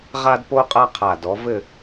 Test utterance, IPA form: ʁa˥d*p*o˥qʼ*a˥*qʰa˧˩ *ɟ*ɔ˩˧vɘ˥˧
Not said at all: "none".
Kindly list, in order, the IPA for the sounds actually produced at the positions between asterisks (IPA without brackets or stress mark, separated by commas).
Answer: p, a˥, d